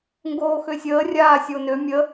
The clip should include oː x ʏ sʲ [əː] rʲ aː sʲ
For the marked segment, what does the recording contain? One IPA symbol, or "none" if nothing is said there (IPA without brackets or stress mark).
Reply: əː